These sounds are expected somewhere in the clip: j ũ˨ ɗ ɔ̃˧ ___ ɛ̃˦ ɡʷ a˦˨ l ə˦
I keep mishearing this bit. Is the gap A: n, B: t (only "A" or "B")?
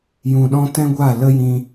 B